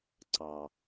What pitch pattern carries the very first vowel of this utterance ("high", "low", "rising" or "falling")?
low